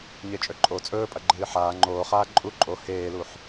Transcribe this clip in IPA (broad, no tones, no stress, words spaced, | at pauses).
ɲet͡ʃʼɵǃʼo t͡sʼɵːpʼɐ ɡ͡ǃɨːħaː ŋ͡ǃoː χaːǃʼu ǃʼo heːluħ